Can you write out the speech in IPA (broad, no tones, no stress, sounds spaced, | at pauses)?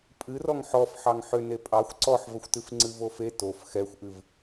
pʼ ɨ r ɔ ŋ ħ ɔ f ħ ɑ ŋ ħ ʏ n e pʼ ɑ xʷ ǀ ɔ ħ v ə xʷ t ɨ f ŋ͡ǀ ɨ v o f e t o f x ɛ xʷ ʔ ɨ v